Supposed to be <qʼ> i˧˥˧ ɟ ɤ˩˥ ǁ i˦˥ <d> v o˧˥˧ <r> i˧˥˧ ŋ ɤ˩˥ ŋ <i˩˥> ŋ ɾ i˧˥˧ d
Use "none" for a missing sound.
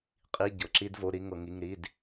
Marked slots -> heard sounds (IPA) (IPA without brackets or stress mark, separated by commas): qʼ, d, ɾ, i˧˥˧